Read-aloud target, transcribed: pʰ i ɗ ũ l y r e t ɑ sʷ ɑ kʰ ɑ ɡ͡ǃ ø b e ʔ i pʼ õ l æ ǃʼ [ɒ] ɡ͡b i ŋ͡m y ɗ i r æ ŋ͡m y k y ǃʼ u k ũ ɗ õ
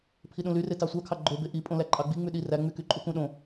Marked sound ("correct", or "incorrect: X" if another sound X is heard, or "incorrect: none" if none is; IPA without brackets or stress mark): incorrect: ɑ